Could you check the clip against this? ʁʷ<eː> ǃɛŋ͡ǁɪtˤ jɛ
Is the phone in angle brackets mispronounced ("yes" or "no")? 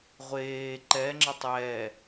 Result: no